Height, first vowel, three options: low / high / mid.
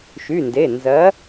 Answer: high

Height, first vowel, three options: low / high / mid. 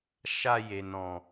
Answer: low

